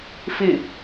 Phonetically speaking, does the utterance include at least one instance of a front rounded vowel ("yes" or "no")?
no